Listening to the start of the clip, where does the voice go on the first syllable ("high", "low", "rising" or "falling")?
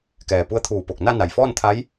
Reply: low